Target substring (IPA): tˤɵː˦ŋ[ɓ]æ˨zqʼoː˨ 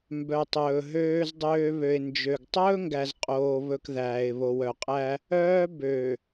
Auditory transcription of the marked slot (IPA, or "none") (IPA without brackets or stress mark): ɡ